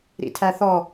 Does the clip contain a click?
no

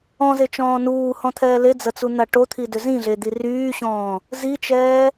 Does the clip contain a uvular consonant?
no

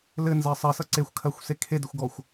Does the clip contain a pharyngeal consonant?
no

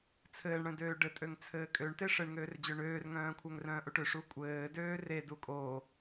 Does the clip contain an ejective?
yes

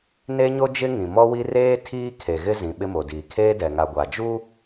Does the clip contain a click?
no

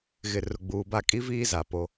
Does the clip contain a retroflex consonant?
no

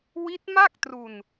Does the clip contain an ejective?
no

